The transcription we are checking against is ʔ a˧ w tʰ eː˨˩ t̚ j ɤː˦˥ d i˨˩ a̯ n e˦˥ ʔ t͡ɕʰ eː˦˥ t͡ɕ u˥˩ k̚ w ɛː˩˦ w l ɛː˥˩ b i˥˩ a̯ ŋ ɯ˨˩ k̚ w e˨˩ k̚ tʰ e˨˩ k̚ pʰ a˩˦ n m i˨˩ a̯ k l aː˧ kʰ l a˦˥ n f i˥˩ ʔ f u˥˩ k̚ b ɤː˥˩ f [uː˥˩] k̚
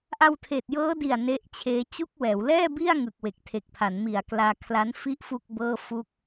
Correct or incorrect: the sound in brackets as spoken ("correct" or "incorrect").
incorrect